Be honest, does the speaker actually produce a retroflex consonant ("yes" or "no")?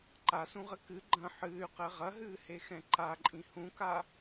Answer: no